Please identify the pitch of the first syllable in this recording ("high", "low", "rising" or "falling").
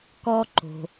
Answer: high